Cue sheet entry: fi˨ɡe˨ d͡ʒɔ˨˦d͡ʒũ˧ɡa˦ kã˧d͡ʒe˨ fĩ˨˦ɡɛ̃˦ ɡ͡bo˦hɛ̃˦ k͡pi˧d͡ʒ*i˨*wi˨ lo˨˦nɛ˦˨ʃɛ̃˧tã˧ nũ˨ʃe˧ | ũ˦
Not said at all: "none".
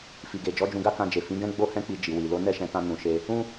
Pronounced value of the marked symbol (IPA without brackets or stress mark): i˨